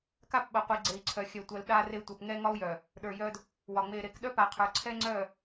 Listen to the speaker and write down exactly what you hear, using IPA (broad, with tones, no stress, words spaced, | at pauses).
ka˦pɓə˨qʷi˨ ɡ͡ǀe˨i̯ǀʰœ˨xʲœ˨tʷœ˨l ɗa˦re˦ tʷœ˨pŋɛ˦ ŋɒ˦u̯jœ˨ | ɗə˞˨jœ˦d | wɒ˨ŋ͡me˨ɾe˨k ɗœ˦pa˨qʰə˞˨ ǀʰɛ˦ŋ͡ǀœ˦˨